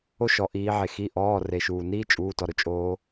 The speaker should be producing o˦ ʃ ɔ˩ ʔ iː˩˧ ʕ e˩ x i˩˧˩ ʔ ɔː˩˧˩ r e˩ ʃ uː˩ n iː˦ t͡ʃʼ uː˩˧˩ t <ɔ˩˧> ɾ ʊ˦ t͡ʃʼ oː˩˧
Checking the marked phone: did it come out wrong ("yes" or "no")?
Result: yes